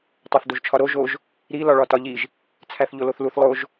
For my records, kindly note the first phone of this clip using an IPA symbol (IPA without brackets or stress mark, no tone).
tˤ